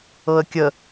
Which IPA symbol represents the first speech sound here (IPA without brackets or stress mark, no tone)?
ɤ